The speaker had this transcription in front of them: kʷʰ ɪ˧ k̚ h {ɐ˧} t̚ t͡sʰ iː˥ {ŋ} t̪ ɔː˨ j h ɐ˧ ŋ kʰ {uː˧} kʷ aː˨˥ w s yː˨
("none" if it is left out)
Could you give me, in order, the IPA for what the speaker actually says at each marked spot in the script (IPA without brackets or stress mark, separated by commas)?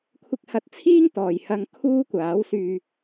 ɐ˧, ŋ, uː˥